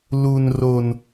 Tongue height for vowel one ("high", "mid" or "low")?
high